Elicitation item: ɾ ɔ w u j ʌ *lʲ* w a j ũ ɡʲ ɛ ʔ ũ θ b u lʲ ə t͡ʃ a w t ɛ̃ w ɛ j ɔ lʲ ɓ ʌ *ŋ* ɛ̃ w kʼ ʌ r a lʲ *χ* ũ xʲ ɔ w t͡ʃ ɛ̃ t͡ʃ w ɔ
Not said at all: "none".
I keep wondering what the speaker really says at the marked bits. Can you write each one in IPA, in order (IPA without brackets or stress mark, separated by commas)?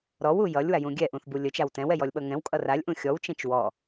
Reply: lʲ, ŋ, ʔ